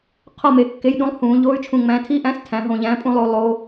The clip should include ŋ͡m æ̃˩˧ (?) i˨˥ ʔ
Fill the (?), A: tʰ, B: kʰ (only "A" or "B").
A